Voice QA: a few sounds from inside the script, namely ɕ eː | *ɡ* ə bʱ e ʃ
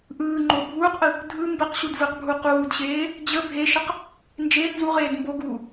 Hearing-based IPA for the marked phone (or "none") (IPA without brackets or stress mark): d͡ʑ